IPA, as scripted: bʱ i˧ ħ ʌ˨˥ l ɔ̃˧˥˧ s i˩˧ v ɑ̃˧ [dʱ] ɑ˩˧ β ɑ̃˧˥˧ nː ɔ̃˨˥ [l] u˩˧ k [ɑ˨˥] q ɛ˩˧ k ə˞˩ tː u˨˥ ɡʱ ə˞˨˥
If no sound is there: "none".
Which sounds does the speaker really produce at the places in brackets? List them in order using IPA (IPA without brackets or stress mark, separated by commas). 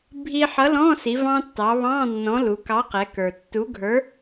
tː, l, ɑ˨˥